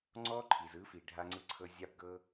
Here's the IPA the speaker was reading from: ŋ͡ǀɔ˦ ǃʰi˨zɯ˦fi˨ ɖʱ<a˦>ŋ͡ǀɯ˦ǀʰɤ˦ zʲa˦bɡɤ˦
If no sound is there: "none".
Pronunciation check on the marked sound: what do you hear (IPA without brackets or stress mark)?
a˦